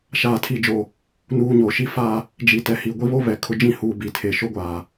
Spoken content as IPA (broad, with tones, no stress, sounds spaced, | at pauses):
ʃ aː˨ tʰ i˨ d͡ʒ o˨ | n uː˨ ɲ o˨ ʃ i˦ f a˦˨ | d͡ʒ i˨ t ɛ˨ h i˨ ɡʷ i˦ β o˦ β ɛ˨ kʰ ʊ˦ d͡ʒ ĩ˦ h uː˨ b i˨ tʰ e˨ ʃ o˦ ɡʷ aː˨